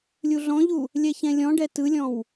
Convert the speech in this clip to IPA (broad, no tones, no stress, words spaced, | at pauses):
lʲuɮɔ̃ʎu | lʲɛçɛ̃lʲɔ̃ɖɛ tɯlʲɔ̃w